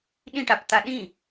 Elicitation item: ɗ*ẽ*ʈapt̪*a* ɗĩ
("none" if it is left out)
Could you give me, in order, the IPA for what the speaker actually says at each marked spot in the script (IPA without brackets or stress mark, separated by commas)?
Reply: ĩ, a